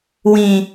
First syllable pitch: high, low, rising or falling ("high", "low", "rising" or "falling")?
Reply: low